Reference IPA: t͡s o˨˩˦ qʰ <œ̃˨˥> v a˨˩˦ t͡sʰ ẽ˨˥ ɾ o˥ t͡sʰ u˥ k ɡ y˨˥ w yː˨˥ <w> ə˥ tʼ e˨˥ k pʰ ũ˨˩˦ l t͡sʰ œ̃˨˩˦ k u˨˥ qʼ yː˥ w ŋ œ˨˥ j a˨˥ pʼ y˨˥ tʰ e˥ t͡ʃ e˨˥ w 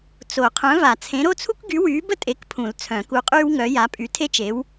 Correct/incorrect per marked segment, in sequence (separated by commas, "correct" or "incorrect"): correct, incorrect